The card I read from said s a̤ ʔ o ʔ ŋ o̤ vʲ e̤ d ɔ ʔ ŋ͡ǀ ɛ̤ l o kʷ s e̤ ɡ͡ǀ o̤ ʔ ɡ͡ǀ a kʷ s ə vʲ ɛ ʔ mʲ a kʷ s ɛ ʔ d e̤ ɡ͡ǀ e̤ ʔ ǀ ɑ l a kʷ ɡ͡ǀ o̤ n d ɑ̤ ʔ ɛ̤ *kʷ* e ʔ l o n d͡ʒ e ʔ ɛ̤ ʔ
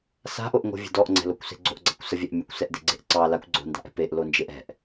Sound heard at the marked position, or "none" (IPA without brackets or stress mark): p